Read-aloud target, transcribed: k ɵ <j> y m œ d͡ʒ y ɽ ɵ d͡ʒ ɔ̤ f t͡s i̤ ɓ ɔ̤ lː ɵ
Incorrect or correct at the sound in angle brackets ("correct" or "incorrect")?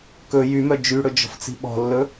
correct